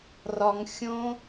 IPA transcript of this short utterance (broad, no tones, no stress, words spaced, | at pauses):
rɒŋxʲõ